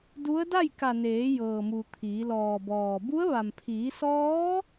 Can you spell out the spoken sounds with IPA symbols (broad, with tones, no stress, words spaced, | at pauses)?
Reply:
du˧˥ə̯ da˥˨jka˧˩ neː˩˧jɤː˩mu˩ t̪ʰiː˩˧lɔː˧˩bɔː˧˩ bu˧˥ə̯ ʋa˩mpʰiː˩˧sɔː˧˥